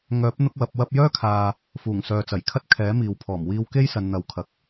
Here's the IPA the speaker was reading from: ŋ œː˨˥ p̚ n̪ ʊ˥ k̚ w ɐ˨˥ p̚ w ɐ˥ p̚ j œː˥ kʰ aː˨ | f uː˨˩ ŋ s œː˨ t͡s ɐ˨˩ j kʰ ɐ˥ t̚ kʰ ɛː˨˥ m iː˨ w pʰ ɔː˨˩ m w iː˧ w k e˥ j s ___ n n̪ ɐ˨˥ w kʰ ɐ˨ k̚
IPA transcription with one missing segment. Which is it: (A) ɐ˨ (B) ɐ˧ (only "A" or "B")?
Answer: A